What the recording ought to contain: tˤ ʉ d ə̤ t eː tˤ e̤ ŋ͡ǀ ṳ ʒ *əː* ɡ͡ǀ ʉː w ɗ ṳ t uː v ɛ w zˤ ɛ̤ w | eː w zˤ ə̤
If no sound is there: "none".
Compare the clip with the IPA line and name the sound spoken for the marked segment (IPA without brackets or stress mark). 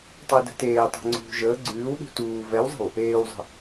əː